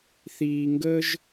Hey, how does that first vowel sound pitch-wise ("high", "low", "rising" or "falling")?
low